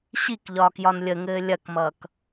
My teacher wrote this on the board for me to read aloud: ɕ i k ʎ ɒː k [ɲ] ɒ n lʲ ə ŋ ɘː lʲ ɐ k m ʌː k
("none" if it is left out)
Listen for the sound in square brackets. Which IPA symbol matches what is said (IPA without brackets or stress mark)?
j